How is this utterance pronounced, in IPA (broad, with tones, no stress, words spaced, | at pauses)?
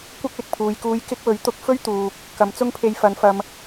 kʷɐ˥k̚lɪ˨k̚pʰuː˨jkuː˧j kɪ˥k̚wɵ˨˥ɥ t̪ʊ˧k̚ fɵ˥ɥt̪uː˨k̚ | kɐ˨˧mt͡sʊ˥ŋpʰe˧j fɐ˨˧nfɐ˧m